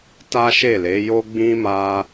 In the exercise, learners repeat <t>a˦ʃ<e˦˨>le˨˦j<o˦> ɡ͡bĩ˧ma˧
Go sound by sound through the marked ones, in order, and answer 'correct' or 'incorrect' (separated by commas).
correct, correct, correct